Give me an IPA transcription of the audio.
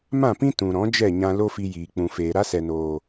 m ã˦˨ p ĩ˦ t ũ˨ ɾ ɔ̃˨˦ d͡ʒ ɛ˦˨ ɲ ã˧ l o˦ f i˧ j iː˨ k͡p ũ˨ f eː˨ ɾ a˦ s ɛ˨ n oː˨

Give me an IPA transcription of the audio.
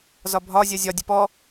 z ɒ bʱ ɒ zʲ ɜ zʲ ɒ dʲ ə p ɔ

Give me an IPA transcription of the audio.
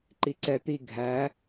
ǃ i ǀ ɛ t̪ i ɡʱ æ

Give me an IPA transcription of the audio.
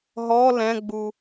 ɦ ɔ l ɛ̃ ɡ͡b u

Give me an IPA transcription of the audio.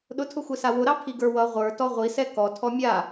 ɗ ʊ tʰ ʊ xʷ e s a w ʊ ɾ ɑ pʰ i ɡ ə˞ w ʌ ʁʷ ə˞ t ɔ ʁʷ i s ɛ k ɔ tʰ ɔ mʲ a

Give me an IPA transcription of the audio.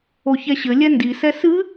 o ç ɛ ɕ ɘ lʲ ɛ n d i s ɛ s ɨ

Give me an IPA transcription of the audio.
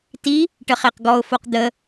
t i | ʈ ə χ e q ɡ ɔ ʊ̯ f o q d̪ ə

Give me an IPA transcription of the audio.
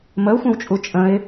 m ə ʊ̯ xʷ ə̃ w t͡ʃʼ u t͡ʃʼ ə̃ ɪ̯

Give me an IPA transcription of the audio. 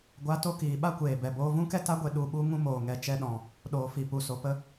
ɡʷ a˨˦ t o˧ k iː˨ ɓ a˦ kʷ eː˨ b ɛ˨ b oː˧ v ũ˦ k ɛ˦ t a˦ ɡʷ e˧ ɗ u˨ ɓ u˧ ŋ ũ˧ m oː˨ ŋ ɛ˨ t͡ʃ ɛ˧ ɗ ɔ̃˨ | ɗ oː˨ f i˨ p u˨ s o˨ p ə˧

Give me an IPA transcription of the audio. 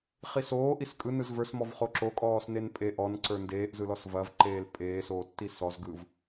χ i s oː ʔ i s kʼ ɯ n ɯ z v ə˞ s m ɔ v χ o ǁ o kʼ ɔː s n e n pʼ e ʔ ɔ n ǀ ə˞ n d eː ʔ z ɯ l ɔ s v ɐ v ǃ eː l pʼ eː s oː tː i s ɔ z ɡ ɯ v

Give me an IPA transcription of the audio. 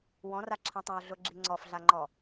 w ɔ̃ r a ǁʰ ã tˤ ã o̯ ɮ ʊ ɡ͡ǁ i ŋ͡ǀ ɔ f ɮ a ŋ͡ǃ ɔ

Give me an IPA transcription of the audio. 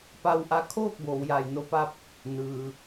p a˧ w ʔ a˧ kʰ oː˥˨ k̚ b oː˩˧ w j aː˧˩ j n o˧ p a˥˨ p̚ | n ɯː˩

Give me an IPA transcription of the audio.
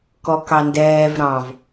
k ɔ k ɑ n d ɛː v ɾ ɑ̃ v

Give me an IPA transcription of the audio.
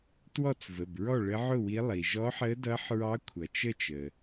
t w ɔ˥˨ t͡s v ə˩˧˩ b ɹ ɔ˥˨ ɭ ə˧˥ ʕ ʊ˥˨ w i˧˥ lˠ i˩ ʒ ɔ˧˥ ħ əː˧˥ d ʌː˧˥ ħ ɹ ɑ˧˥ kʷʰ ʌ˩ t͡ʃ ə˥˨ t͡ʃ ə˩

